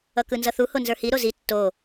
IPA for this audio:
ʌ k ɯ n z ʌ θ u h o n z ə˞ h i ɾ o z i tː o

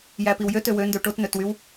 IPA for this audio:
j æ p i w j ø t ø w ø n d ø ʈ o t n ø t w y w

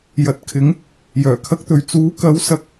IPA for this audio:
j ɐ˨ t̚ kʰ ɪ˨˥ ŋ | j œː˨˩ kʰ ɐ˧ k̚ t̪ ɵ˨ ɥ t͡s uː˨˥ k ɐ˨˥ w s ɐ˧ k̚

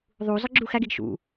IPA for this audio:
ðˤ u z ɑ ɡ͡ǁ u x æ ɡ e ɡ ʃ ṵ

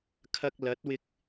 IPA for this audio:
kʰ ɐ˧ k̚ l ɐ˨˥ t̚ w ɪ˧ k̚

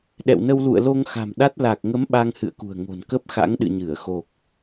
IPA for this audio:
ɗ ɛ̰˧˨ w n ə˧ w l ṵ˧˨ ə̯ l o˧ ŋ x a̤˨˩ m ɗ a˦˥ t̚ l a˨˩ k̚ ŋ ə˨˦ m ɓ a˧ ŋ h ɨ̰˧˨ ə̯ k ṳ˨˩ ə̯ ŋ o̤˨˩ n k ə˦˥ p̚ x a̰˧˥ ŋ ɗ ɨ̰˧˨ ɲ ɨ˧˩ ə̯ x o˨˩ k̚

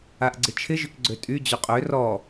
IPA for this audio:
a ʔ ɡ͡ǀ ɪ t͡ʃʰ ɪ ʒ ʏ k ɡ͡ǀ ø tʼ y d͡ʑ o qʼ ø r ɔ

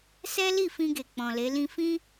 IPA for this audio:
s ɛ˦ l i˦˨ f ĩ˧ ɡ e˨ k͡p ɔ̃˨ l e˨˦ l ĩ˦ f ĩ˦

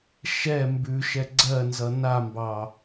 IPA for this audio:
ʃ ɛ m b ʉ ʃ ɛ ɡ͡ǀ ɜ n z ʌ n a m b ɑ

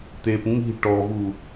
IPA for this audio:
t̪ e p ŋ i̤ ʈ ɔ v u

